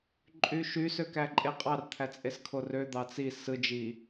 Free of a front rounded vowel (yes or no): no